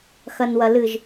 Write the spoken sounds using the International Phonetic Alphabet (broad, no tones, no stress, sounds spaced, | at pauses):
x ɐ n w ɐ l ɨ ʒ